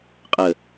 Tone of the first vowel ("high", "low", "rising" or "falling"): low